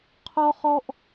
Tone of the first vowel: high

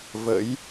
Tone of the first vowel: rising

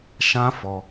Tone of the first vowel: high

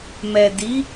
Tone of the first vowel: low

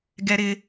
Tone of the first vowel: high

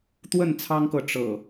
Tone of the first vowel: falling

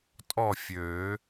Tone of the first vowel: falling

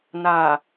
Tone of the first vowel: low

